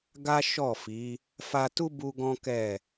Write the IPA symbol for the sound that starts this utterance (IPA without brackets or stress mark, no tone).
ɡ